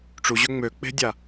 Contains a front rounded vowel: yes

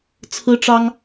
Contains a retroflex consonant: yes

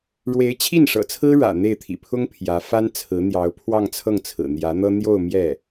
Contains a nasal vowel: no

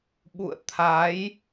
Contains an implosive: yes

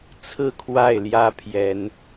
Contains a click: no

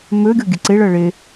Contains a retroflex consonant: yes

